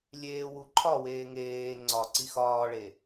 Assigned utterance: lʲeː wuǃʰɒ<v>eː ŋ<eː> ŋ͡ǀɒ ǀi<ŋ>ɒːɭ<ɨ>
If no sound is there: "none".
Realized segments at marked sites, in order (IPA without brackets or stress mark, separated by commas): w, eː, x, e